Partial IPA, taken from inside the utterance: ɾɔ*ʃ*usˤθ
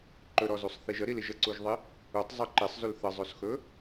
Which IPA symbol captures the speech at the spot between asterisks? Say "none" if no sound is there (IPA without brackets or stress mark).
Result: z